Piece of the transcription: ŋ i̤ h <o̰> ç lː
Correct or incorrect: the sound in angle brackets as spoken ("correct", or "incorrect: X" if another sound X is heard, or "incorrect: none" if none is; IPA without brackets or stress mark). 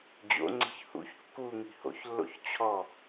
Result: correct